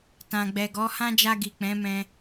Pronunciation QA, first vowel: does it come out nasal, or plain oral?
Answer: nasal